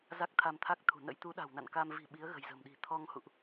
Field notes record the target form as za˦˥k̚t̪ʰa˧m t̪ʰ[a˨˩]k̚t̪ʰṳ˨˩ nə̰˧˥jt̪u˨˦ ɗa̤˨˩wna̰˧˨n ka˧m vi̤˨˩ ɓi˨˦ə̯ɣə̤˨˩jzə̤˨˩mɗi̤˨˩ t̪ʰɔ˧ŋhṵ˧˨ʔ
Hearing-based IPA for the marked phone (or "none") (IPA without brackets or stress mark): a˦˥